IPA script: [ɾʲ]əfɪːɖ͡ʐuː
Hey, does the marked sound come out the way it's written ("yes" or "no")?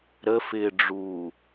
no